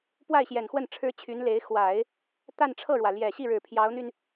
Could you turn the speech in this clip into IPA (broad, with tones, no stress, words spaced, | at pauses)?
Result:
pwa˥˩ɪ̯ɕjɛ˨˩nxwə˥˩n ʈ͡ʂʰɻ̩˥t͡ɕʰy˧˥nle˧˥ɪ̯ xwa˨˩˦ɪ̯ | t̪a˥˧nʈ͡ʂʰɤ˥˩ɻwä˩ ljɛ˨˩ɕi˥˩ɻɻ̩˨˩ pʰjɑ˧˥ʊ̯n̪y˧n